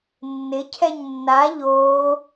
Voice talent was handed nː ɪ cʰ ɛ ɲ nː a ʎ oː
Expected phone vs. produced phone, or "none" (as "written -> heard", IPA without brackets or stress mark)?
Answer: none